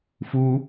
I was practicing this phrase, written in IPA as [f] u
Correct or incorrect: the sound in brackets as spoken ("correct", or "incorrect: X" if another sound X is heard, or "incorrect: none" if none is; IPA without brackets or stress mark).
correct